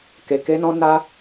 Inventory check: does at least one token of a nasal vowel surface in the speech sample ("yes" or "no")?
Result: yes